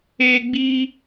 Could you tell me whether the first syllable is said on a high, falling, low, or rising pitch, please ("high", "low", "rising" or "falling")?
high